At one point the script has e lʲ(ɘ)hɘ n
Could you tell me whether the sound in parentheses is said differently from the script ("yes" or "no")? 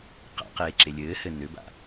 yes